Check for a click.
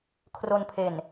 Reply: absent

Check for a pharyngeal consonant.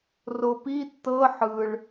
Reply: present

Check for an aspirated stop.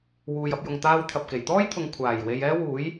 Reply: present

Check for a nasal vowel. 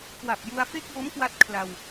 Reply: absent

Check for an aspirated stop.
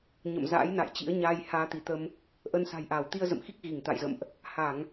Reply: absent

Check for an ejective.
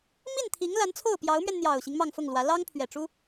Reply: absent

